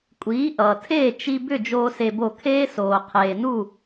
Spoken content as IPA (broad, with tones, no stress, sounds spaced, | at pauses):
kʷʼ iː˩˥ ʔ ʌː˩ tʰ eː˥˩ t͡ʃ i˧ b ʏ˥˩ d͡ʒ oː˥ s e˧ b o˥˩ kʰ eː˥ s oː˩ qʰ eː˩ n u˥˩